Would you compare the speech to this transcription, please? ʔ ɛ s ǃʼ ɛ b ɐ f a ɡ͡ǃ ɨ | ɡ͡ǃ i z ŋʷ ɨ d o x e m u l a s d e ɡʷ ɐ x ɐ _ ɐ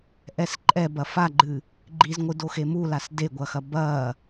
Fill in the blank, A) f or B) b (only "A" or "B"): B